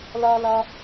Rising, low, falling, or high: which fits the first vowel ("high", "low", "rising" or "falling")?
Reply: high